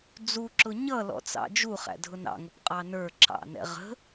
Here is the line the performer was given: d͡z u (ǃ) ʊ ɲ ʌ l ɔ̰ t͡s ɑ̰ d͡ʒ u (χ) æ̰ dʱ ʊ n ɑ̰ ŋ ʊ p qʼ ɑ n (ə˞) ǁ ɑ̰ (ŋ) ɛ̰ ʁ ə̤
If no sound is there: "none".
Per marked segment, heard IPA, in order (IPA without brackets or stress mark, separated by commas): ǁ, χ, ə˞, n